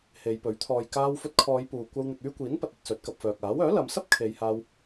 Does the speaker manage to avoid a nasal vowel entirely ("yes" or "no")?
yes